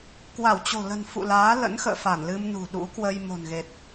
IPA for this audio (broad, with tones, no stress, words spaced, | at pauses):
kwa˧˩wt͡ɕo̤˨˩lə̤˨˩n fṵ˧˨laː˨˦ lə̰˧˥nxə̰ː˧˨fa˧˩n lɨ˧mnṳ˨˩ ɗṵ˧˥kwə˧j mo̤˨˩nɣe˨˩t̚